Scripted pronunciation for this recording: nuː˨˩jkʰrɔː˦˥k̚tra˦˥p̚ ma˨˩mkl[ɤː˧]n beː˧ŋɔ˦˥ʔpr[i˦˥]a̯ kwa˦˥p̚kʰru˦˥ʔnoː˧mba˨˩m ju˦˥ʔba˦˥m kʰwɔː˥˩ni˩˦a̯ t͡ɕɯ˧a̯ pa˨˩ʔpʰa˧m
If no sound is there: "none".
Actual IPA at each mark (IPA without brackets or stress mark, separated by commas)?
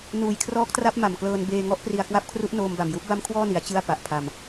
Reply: ɤː˧, i˧